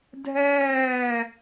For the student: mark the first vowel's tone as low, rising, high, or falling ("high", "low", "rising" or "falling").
falling